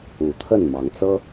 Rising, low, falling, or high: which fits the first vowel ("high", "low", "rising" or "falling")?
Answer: rising